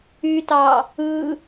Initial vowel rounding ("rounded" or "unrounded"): rounded